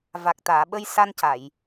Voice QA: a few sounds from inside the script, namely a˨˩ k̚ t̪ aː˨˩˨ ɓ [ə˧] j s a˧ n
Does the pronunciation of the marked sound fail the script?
no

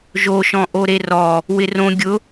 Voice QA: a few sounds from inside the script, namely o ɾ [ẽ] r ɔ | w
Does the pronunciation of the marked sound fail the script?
yes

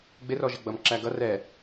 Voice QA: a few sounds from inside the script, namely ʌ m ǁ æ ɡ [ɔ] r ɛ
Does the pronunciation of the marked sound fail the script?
yes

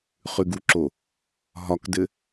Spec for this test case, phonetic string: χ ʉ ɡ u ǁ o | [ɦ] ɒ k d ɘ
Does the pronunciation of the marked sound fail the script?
no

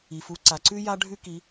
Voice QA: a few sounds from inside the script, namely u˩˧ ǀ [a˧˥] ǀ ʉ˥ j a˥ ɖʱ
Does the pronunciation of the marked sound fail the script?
yes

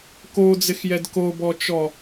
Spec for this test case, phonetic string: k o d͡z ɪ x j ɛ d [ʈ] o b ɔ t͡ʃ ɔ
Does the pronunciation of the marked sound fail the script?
yes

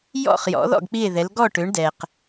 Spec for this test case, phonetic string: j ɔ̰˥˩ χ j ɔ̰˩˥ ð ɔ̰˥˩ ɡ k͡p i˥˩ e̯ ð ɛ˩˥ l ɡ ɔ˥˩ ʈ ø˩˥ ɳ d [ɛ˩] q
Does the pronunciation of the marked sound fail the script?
no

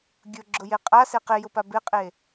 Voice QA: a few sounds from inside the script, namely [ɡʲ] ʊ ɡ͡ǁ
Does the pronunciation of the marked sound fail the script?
no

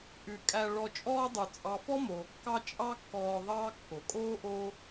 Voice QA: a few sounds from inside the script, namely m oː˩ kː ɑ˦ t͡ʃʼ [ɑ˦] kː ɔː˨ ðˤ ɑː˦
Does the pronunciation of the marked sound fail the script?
no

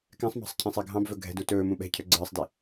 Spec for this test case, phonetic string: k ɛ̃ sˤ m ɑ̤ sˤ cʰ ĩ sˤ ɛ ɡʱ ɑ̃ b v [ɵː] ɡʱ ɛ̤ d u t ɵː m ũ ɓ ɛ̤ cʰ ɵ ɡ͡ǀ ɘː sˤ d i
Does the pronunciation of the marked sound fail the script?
yes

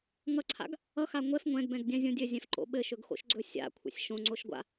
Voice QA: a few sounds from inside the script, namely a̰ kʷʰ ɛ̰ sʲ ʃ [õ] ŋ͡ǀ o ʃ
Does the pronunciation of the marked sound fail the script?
no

